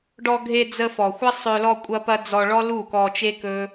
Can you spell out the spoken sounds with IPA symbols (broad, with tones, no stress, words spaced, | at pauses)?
ɖɔ˧ ɡʱe˧d͡zə˧ fɔ˨xʷɐ˦ sˤɵ˧ lɔ˧kʷʼɐ˧pɐ˧ d͡zɔ˧ɭɔ˦lu˦˨ kɔ˧t͡ʃe˦kɵ˦